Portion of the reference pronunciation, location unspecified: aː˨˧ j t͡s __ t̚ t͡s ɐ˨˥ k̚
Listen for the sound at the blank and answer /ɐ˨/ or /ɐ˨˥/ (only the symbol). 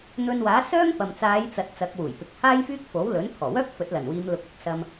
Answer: ɐ˨